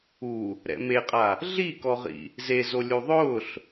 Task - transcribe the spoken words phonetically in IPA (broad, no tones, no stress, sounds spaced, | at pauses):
u | ɾ ɛ̰ m e qʼ a | ɮ i k ɔ ʁ ḭ | z e z o lʲ u ðˤ ʊː ɬ